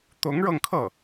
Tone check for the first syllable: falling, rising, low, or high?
rising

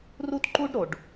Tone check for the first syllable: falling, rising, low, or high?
high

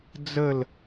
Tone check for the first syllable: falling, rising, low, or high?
falling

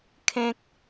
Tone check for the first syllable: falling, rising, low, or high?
high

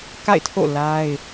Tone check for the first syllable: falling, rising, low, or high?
falling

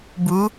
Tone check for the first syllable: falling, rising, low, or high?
rising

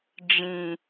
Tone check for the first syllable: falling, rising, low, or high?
low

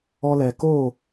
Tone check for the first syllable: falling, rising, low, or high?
high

